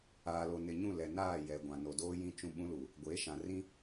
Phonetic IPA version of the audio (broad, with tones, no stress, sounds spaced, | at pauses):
aː˨ l o˨ n ɪ˨ ɲ ũ˦˨ l ɛ˨ n aː˦˨ j ɛ˨ ɡʷ ã˨ n o˨ d oː˦ j ĩ˦ t͡ʃ ũ˦ ɓ ũ˦ l u˨ | ɡʷ eː˨˦ ʃ ã˨ r ĩ˦